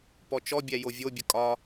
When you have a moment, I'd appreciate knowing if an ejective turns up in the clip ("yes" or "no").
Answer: yes